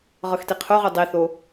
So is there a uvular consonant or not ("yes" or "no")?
yes